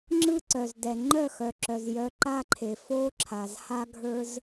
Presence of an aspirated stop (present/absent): present